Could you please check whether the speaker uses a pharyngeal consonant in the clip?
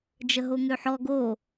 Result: yes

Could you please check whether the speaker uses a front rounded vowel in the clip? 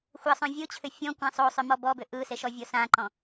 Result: yes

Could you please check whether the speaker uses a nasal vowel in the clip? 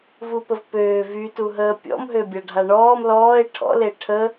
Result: no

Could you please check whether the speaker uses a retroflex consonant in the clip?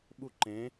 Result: no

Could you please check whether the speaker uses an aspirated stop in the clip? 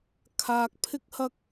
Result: yes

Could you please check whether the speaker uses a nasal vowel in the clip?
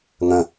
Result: yes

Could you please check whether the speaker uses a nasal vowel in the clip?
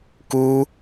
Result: no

